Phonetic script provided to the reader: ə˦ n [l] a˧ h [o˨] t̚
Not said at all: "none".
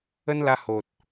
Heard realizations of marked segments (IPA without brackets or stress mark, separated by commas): l, o˨